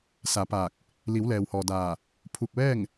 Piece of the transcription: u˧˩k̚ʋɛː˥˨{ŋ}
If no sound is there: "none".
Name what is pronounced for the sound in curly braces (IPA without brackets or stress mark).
ŋ